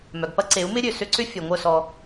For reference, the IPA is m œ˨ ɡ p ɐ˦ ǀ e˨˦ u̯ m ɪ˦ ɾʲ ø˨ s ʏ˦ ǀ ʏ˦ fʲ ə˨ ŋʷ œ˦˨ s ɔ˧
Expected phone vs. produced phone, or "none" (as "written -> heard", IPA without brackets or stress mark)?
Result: ə˨ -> œ˨